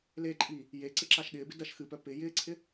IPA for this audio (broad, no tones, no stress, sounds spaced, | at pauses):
l e ǃʼ i | j e ǀ ɪ ǁ a ʃ ɠ ɪː b ɪ d ɐ ʃ x ɨ p œ p ɪ j ɪː ǀʰ ɪ